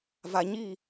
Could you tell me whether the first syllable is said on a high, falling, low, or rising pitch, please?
low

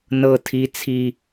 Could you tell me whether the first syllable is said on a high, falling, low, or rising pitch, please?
high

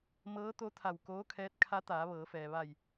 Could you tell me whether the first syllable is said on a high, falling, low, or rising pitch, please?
rising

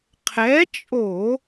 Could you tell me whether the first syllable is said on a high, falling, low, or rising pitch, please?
rising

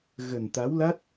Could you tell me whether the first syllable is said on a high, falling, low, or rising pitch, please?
low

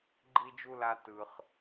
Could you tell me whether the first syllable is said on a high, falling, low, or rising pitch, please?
high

